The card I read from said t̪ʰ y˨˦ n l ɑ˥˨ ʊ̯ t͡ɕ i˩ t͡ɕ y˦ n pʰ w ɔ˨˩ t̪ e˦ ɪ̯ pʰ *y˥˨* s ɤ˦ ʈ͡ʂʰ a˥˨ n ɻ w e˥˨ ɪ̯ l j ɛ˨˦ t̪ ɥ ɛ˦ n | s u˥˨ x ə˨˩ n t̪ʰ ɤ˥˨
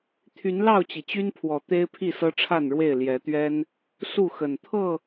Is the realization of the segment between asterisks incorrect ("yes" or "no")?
yes